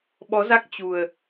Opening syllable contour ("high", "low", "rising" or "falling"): rising